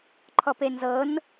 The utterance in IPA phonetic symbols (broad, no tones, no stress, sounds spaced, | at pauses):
ǃʰ ɔ p e n z ɤ n